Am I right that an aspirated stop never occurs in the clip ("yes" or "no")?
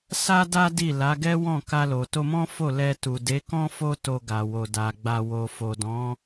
yes